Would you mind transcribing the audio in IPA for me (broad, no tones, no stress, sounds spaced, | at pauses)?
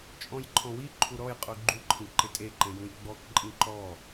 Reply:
t͡ʃʼ ɔ̃ j ǃʰ ɔ̃ w i ǃʰ u ɾ ɔ j qʼ u ɡ͡ǃ u ǃʰ ĩ ǃ ɪ tʼ e ǃ ẽ j ũ j ɡ͡b ɔ k ǃʼ ĩ ǃ ɔ